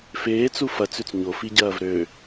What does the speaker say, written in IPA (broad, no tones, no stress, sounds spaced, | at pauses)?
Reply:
f eː t͡s u f ɐ t͡s ʉ t͡s ɲ o f i ɟ ɐː v ɾ ø